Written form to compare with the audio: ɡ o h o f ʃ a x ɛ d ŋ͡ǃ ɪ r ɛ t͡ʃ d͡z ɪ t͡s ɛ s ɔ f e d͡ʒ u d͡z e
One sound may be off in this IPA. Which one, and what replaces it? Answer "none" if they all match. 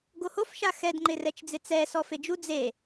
none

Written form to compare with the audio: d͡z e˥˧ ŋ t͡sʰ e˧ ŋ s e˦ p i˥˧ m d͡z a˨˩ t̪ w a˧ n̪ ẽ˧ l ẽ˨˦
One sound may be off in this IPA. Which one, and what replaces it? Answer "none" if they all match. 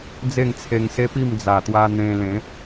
none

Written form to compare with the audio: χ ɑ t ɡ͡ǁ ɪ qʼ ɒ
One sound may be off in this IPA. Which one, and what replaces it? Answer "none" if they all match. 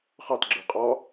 ɪ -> ə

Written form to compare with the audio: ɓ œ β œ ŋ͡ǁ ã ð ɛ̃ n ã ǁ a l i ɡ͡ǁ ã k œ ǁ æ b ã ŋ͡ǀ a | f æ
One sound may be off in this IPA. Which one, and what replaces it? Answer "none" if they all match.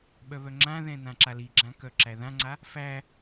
b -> ð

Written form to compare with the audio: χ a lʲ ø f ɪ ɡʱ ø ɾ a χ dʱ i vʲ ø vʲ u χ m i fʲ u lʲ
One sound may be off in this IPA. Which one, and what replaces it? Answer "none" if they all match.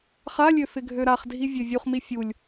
none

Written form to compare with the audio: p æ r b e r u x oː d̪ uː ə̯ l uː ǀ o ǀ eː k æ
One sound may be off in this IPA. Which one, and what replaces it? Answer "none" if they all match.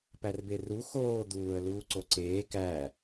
none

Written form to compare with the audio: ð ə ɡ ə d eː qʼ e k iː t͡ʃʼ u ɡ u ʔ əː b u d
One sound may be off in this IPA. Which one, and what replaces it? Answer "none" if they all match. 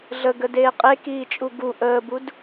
ð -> ɮ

